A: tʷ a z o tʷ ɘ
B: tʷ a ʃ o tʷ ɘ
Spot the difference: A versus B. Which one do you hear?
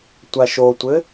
B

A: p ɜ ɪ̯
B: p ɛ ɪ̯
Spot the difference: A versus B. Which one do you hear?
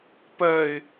A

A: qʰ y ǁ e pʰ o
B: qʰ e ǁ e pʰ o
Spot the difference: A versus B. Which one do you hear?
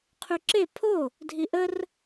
A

